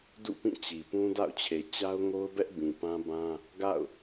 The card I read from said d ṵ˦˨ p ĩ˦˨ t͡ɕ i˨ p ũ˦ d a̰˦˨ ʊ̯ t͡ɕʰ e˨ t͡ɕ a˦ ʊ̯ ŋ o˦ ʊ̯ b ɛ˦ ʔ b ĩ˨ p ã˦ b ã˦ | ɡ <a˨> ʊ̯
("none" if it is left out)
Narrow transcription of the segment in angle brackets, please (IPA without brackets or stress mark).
a̰˦˨